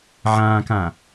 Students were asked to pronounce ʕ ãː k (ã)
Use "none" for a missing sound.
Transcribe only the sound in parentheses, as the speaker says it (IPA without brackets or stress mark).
ãː